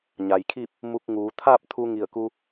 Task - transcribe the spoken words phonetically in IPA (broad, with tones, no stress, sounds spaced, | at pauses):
ɲ a˩ j kʰ i˥˨ p̚ | m u˧ k̚ ŋ uː˩˧ t̪ʰ a˥˨ p̚ t̪ʰ u˧ ŋ i˧˩ ə̯ k u˧